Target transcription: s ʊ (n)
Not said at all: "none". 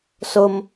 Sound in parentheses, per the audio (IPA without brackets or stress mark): m